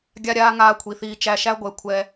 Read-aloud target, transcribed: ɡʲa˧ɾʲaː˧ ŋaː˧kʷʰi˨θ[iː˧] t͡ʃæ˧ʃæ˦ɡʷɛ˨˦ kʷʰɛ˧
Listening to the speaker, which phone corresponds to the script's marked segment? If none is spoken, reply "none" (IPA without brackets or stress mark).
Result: iː˧